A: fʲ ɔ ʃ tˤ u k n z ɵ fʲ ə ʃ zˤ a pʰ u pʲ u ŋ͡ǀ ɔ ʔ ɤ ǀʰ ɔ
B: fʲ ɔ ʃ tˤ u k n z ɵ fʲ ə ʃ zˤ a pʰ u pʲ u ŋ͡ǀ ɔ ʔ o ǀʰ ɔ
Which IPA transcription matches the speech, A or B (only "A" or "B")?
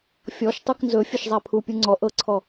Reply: A